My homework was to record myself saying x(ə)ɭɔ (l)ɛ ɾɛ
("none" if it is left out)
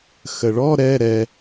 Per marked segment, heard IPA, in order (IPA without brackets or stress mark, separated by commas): ə, ɾ